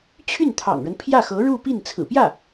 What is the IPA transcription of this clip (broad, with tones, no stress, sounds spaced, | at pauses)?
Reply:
t͡ɕʰ y˥˩ n t̪ʰ ɑ̰˨˩ ŋ ɻ ə˦ n pʰ j ä˥˩ x ɤ˧˥ ɻ u˥˧ p i˥˩ n t͡sʰ ɹ̩˨˩ p j ä˥˩